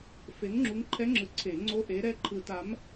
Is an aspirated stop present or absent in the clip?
present